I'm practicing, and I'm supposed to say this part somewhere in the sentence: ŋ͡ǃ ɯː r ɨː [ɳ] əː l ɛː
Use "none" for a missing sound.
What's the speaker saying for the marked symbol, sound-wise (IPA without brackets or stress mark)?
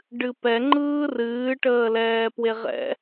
ʈ